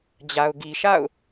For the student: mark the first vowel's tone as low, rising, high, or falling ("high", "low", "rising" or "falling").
low